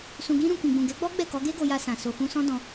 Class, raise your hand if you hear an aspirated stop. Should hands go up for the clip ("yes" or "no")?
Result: no